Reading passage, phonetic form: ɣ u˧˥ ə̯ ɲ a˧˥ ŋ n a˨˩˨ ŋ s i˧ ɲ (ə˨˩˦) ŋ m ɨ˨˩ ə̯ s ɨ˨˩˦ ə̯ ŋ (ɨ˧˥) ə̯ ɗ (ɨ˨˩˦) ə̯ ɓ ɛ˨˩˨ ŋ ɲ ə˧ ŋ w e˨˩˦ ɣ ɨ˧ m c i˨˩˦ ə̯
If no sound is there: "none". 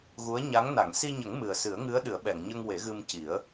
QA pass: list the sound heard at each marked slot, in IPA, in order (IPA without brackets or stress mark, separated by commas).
ə˨˩˦, ɨ˧˥, ɨ˨˩˦